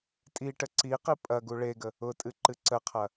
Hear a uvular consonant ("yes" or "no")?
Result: yes